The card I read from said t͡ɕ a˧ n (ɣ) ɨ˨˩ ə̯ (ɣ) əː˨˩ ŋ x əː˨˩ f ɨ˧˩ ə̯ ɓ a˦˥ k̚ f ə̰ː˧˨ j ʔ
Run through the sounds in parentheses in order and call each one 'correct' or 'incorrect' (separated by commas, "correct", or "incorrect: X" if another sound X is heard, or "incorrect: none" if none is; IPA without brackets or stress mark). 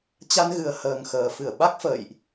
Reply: correct, incorrect: h